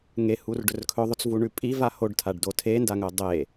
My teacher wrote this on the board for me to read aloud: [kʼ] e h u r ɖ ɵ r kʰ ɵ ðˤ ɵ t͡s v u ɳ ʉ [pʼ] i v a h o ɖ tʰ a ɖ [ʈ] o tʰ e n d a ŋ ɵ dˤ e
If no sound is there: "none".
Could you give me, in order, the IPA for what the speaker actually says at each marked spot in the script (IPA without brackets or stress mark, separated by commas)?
ŋ, pʼ, d